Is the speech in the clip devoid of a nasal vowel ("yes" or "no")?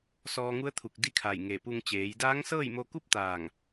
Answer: yes